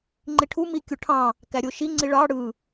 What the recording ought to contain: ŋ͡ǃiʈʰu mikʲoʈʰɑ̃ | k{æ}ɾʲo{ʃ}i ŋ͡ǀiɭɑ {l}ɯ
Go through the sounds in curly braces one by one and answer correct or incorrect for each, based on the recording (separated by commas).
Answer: correct, correct, incorrect